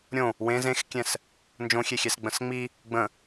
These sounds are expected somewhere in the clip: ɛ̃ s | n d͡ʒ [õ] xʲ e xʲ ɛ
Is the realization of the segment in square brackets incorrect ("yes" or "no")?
no